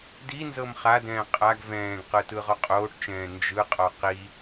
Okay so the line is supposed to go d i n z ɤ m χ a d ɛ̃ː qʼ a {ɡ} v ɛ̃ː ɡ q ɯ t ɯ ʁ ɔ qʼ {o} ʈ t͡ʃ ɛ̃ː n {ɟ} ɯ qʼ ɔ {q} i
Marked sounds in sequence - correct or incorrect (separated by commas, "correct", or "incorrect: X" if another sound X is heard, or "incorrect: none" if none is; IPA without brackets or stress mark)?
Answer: correct, incorrect: oː, incorrect: d͡ʒ, correct